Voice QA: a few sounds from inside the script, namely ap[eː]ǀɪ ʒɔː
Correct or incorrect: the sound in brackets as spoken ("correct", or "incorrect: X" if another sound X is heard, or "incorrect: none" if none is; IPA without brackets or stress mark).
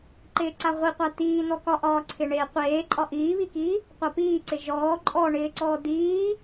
incorrect: iː